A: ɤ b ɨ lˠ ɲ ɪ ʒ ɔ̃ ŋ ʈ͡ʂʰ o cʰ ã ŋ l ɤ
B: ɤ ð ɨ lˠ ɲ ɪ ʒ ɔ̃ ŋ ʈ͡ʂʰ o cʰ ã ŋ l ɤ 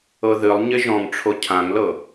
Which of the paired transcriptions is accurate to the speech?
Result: B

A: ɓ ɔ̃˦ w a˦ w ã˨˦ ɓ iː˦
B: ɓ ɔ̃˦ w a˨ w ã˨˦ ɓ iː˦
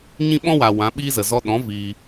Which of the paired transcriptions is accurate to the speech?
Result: B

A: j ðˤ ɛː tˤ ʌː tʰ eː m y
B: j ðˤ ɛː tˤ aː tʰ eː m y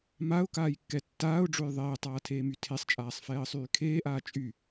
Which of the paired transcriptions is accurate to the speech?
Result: B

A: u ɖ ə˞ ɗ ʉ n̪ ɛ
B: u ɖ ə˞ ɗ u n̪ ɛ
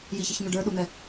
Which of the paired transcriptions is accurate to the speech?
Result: B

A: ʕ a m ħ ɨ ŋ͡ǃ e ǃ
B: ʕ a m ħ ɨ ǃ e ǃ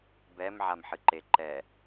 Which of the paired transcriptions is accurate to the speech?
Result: B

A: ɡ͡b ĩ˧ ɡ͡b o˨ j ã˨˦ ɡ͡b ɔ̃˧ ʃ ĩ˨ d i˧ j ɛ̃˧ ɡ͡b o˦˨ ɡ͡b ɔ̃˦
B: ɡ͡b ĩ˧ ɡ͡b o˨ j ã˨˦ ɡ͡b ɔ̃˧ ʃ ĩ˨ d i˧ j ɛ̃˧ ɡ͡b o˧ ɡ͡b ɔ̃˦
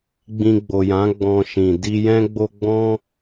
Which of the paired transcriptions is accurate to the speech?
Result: B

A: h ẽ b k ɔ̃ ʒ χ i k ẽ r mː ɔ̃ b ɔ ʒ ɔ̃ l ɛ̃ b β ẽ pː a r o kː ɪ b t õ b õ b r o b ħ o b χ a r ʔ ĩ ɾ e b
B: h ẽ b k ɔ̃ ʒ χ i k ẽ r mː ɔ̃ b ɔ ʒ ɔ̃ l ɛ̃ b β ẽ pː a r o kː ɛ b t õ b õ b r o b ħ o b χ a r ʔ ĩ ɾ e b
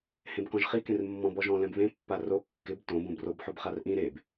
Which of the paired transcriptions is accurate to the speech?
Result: A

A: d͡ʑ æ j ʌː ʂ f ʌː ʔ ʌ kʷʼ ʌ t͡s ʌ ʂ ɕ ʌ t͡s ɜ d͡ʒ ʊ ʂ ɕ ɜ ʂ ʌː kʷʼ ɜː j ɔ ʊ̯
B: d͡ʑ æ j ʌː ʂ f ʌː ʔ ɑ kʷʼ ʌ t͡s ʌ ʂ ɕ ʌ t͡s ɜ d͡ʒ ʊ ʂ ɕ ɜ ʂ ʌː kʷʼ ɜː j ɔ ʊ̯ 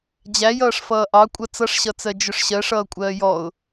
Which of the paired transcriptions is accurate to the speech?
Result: B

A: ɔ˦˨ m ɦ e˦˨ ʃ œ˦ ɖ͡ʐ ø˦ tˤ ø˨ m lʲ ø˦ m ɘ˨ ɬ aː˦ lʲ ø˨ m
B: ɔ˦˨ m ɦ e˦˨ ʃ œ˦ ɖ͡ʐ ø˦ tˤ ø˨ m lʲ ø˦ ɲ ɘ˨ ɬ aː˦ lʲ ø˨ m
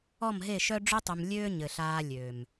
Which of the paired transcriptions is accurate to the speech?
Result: B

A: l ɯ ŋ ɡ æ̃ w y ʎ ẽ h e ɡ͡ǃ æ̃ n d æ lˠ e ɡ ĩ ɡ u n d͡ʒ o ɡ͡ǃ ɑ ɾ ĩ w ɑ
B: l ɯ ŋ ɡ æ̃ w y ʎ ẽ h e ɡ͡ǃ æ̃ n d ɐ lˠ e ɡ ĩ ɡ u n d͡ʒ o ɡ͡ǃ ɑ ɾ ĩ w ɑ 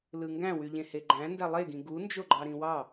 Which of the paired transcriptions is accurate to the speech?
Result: A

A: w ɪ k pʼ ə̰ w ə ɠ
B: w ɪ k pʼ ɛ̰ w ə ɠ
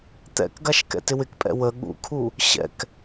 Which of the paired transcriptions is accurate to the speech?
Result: B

